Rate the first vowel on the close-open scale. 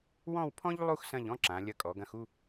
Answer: mid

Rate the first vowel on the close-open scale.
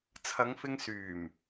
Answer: open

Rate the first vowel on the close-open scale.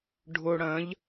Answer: close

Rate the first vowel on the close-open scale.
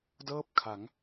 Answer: mid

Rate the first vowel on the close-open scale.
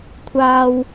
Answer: open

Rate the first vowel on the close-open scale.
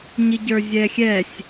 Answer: close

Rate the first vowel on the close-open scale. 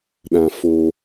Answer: open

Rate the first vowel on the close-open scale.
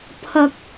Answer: open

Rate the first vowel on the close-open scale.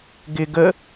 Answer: close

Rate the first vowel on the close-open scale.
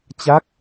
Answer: open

